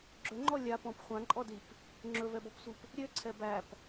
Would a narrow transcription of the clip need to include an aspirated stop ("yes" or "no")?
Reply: yes